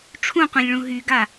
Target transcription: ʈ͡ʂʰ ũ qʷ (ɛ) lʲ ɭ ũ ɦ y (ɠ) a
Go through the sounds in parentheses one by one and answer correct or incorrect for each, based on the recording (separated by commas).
incorrect, incorrect